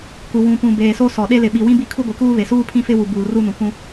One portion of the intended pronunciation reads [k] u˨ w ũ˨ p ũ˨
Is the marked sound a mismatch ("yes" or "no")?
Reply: no